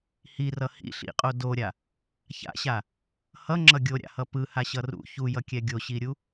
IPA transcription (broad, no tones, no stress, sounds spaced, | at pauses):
h i r ʌ h ḭ ɬ ḭ qʼ o d o ɾʲ a | ç a̰ ɕ a | h ʌ ŋ͡ǁ ʌ ɡʲ o ɾʲ a̰ h ʌ p ɯ h a ɕ ʌ r ṵ ç u j ʌ kʲ ɛ ɡʲ o ɕ i ɾʲ u